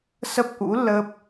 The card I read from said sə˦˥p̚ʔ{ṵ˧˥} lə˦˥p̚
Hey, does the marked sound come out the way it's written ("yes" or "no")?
yes